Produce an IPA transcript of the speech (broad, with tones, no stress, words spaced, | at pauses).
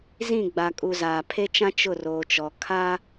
zĩ˦˨ɡ͡ba˨kʼu˨ zaː˨pʰe˦t͡ʃã˦ t͡ʃʊ˦˨roː˨t͡ʃɔ˨ kʰaː˦